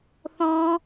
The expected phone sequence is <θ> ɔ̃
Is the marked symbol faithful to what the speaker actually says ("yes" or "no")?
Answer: yes